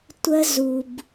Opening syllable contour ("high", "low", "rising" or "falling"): high